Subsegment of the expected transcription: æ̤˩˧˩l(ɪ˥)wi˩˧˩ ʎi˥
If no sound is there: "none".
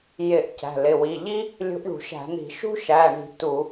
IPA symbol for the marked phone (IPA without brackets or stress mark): ɪ˩˧˩